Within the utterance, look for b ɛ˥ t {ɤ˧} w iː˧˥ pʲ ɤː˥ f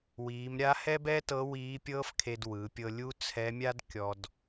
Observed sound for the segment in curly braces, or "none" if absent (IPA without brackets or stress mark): ɤ˧˥